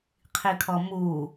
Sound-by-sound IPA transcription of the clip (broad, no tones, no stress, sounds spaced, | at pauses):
qʰ i kʰ ɔ m u